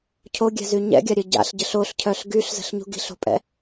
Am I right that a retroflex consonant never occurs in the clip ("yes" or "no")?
yes